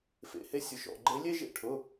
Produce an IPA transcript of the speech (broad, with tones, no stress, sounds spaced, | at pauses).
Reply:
f ḛ˩˧˩ h e˦ sʲ ʊ˩˧˩ ʃ ɔ̰˩˧˩ ɡ͡ǃ e˨˦ lʲ e˦ ʒ ḛ˦ ʈʰ ʊ˩˧˩